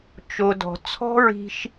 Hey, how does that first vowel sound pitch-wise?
low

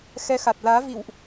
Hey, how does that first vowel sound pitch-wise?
rising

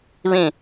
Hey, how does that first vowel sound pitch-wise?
falling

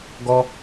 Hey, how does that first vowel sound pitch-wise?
high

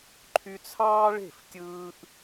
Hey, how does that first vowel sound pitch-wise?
high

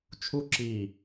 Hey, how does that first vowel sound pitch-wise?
high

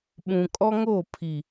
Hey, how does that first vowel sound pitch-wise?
low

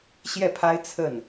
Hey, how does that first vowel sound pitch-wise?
falling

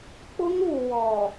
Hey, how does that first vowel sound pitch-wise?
high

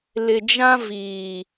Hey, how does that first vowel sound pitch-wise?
low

